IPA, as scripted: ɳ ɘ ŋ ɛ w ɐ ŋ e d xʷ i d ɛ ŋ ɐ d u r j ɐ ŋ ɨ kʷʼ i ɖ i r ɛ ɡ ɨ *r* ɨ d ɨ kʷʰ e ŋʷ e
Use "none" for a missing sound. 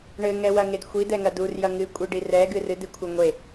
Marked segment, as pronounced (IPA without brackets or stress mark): r